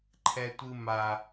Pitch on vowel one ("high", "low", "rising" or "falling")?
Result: high